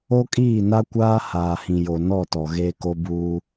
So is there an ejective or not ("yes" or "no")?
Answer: yes